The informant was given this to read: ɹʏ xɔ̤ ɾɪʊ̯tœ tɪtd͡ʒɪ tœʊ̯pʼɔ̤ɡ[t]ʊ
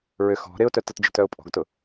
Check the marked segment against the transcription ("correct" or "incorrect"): correct